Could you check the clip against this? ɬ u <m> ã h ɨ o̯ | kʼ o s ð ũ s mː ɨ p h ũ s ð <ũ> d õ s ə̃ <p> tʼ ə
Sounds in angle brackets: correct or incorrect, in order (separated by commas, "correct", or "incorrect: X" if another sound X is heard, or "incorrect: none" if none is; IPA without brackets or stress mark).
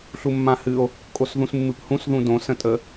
incorrect: mː, correct, incorrect: none